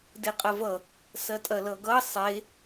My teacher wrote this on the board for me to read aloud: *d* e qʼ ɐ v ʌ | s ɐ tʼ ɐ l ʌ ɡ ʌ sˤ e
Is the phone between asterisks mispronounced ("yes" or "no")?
no